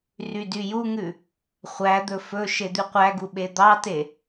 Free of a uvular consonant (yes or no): no